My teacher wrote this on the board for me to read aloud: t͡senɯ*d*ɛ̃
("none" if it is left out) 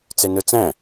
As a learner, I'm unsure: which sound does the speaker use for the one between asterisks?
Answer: t͡s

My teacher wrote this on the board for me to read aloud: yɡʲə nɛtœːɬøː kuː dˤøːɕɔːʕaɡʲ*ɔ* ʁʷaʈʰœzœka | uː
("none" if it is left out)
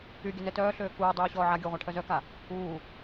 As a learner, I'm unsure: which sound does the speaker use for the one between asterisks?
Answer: ɔ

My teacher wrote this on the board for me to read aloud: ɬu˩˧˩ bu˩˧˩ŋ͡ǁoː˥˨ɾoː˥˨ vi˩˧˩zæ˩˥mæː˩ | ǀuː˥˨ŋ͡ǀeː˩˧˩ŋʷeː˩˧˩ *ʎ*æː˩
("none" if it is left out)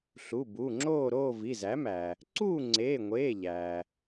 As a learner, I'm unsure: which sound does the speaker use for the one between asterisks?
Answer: ʎ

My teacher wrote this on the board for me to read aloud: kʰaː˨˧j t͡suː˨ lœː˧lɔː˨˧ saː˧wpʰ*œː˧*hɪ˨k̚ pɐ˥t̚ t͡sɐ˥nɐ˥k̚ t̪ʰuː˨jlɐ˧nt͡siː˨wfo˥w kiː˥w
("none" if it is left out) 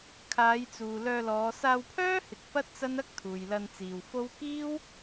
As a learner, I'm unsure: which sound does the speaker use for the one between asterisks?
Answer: œː˥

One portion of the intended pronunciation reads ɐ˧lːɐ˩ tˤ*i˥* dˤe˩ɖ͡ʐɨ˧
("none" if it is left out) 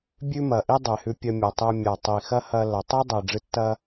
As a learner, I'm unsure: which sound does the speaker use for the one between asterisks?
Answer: i˥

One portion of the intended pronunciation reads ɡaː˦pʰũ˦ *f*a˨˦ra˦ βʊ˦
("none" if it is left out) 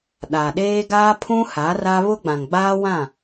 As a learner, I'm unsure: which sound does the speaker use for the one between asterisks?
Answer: h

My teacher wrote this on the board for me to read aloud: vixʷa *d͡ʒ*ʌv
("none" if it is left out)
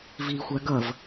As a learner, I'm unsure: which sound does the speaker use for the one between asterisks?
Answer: ɡ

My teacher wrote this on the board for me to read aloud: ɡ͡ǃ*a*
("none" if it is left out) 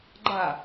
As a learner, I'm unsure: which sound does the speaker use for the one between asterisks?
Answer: a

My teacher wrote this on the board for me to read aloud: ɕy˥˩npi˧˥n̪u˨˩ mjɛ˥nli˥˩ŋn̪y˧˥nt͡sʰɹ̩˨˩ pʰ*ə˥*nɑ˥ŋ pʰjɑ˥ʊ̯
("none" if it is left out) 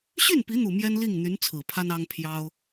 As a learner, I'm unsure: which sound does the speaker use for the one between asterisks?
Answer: a˥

